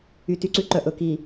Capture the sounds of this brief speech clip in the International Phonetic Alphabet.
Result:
y˨ t y˦ ǀ ʉ˦ ǃ œ˨ ʔ ɵ˨ k i˨

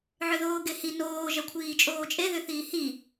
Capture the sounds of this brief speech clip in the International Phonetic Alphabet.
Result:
ʕ ʏ ð oː ɡ e h i n oː ʒ ɐ kʷʰ iː t͡ʃʼ oː t͡ʃʼ e ð ʏ θ iː h i

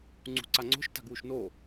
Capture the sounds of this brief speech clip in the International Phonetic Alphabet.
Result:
ŋ͡ǀ ṳ ǀ a ŋ͡ǀ o̤ ʃ t a̤ ɡ w u ʃ n o

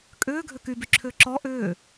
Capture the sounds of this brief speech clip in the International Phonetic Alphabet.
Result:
kʼ ʏː ɡʱ ʏ k y b y ǁʰ ʏː ǁ ɔ ʔ ʏː

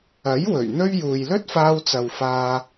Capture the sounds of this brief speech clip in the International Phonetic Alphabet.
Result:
ɐ˨˥ j w ɵ˨˩ ɥ n̪ ɵ˥ ɥ j uː˨ j l ɵ˥ t̚ f aː˧ w t͡s ɐ˨ w f aː˧

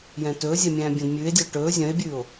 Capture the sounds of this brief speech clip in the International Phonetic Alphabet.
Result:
j ɛ̃ t ɵː zʲ ɛ mʲ æ̃ː bʲ œ̃ d mʲ ʉː e̯ dʲ ɵː ʈ ɵː zʲ œ̃ e̯ bʲ ʉː o̯

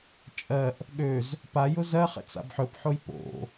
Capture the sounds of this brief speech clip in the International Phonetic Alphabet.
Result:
t͡ʃʼ ɜ ʔ | ɠ ø z | p a j ʊ z ɜ χ ɛ̰ t͡s a̰ b ħ ɵ p ħ o j p o̰

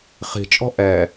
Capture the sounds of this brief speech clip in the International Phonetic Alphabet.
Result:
χ i̤ t͡ʃʼ ɔ̤ ʔ ɛ

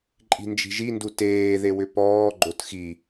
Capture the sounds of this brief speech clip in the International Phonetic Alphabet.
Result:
ǃʼ i̤ n d͡ʒ i̤ ʒ i n d u t eː ð e w ʏ p ɔː ɡ͡ǃ o t x i

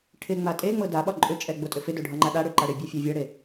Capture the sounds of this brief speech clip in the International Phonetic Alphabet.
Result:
ʈʰ ɪ ŋ͡m a tʼ e ŋ͡m ɤ d a ɓ ɒ ǃʼ ʏ t͡ʃʼ ɛ ɡ͡b o tʼ ʏ f ɪ d o ɖʱ ɒ ŋ͡ǃ a ɗ a ɽ ʏ ǃ a ɽ ɪ bʲ ɛ fʲ ɛ vʲ ɤ ɽ e

